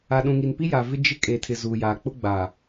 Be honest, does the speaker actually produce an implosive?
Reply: yes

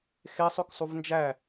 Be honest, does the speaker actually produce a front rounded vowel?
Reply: yes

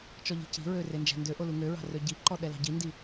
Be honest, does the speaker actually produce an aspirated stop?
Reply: no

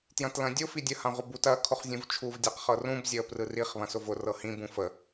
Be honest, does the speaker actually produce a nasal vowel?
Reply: yes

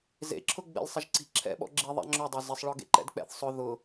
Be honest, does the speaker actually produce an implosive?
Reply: yes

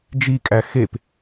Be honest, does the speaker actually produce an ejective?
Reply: yes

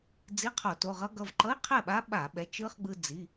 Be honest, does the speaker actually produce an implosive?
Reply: yes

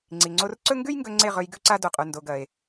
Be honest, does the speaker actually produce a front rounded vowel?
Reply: no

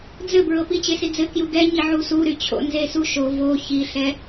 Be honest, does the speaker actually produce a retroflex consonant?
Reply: no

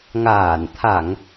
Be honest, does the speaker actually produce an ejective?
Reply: no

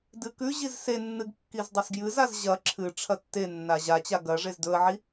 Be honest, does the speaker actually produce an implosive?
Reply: no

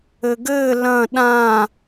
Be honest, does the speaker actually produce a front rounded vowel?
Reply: no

